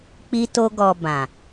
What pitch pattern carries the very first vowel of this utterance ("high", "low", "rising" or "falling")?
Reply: high